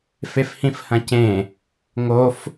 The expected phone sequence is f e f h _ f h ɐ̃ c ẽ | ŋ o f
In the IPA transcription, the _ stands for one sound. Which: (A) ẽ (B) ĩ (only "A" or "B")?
B